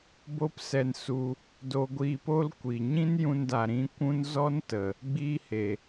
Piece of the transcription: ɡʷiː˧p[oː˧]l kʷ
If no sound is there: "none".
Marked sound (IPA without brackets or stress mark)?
oː˦